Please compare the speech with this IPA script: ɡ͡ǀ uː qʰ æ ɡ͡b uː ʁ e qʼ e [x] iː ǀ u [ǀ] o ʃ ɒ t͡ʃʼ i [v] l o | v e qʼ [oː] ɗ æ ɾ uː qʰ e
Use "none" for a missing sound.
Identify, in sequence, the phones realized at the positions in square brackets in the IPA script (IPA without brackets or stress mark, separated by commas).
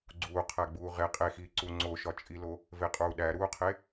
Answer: x, ŋ͡ǀ, none, uː